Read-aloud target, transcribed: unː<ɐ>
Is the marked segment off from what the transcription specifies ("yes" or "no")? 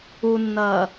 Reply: no